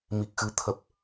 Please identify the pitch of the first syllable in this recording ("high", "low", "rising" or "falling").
low